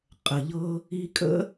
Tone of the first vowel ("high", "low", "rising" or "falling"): low